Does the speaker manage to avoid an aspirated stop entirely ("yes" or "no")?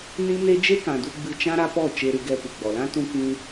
yes